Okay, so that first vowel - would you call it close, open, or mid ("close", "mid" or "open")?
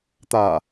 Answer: open